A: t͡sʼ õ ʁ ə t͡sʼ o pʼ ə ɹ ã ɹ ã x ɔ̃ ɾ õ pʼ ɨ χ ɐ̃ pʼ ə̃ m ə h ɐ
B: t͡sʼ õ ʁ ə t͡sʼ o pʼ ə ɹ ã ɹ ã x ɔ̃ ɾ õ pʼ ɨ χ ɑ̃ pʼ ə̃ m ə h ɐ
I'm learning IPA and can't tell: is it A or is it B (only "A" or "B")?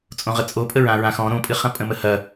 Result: A